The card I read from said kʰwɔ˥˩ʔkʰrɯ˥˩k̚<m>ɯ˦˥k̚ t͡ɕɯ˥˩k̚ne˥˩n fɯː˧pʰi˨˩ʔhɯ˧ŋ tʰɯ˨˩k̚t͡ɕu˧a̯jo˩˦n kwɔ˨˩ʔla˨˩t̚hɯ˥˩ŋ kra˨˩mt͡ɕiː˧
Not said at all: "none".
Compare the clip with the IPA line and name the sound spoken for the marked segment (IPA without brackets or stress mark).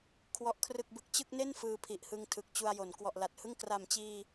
b